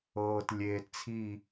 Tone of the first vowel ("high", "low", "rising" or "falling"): low